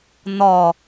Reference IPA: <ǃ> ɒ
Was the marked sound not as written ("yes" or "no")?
yes